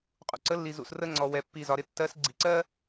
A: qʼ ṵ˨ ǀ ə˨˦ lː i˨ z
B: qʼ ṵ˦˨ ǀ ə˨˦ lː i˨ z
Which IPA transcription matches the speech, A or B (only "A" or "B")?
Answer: A